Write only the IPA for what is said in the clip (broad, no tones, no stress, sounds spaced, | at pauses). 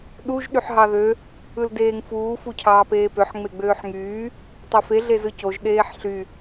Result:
ɗ u ʒ ɗ y ħ ɦ ɑ ð ø | ɯ l d eː ŋ f uː f u cʰ ɑː p eː p ø ħ ŋ͡m e ɡ͡b øː ħ ŋ yː | tˤ e f e ɮ e z ɯ c o ʒ ɗ eː ħ ɬ y